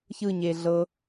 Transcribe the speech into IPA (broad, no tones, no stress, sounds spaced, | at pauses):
ç ɯ ɲ e ɮ ɤ